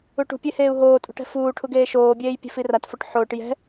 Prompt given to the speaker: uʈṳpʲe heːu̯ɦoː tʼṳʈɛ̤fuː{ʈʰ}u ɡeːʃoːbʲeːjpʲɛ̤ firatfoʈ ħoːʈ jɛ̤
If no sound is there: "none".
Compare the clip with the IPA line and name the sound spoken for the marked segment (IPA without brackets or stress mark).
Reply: ʈʰ